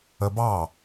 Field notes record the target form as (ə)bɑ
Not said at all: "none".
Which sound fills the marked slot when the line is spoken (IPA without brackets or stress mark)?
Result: ə